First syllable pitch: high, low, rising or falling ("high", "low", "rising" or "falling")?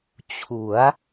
rising